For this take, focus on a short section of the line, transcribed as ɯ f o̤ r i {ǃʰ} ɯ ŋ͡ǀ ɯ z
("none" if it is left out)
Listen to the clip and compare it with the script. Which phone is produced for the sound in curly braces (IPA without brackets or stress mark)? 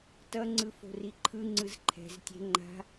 ǃʰ